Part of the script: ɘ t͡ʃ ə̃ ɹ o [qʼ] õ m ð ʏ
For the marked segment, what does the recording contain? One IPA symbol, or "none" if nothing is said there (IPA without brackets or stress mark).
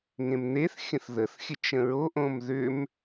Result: ʔ